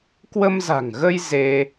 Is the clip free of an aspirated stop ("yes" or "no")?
yes